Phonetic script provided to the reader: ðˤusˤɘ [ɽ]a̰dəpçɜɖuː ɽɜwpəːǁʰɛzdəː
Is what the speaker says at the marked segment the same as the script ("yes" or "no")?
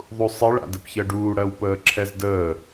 no